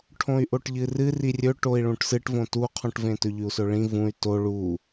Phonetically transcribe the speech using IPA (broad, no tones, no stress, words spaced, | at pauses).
ʈʰõy̯ʔoʈʎɨrɨ rirʲɵʈoi̯ ɭũʈsɨʈvõ tuqʰũʈvẽtɵ ʎʉu̯sɵɭĩ vũy̯ to ɭu